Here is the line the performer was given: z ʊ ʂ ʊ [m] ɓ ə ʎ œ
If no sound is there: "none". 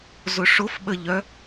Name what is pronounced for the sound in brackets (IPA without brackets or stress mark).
f